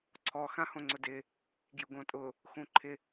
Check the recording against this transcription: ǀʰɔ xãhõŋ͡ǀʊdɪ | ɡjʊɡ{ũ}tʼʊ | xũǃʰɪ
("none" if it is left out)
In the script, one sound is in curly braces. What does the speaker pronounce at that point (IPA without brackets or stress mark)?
õ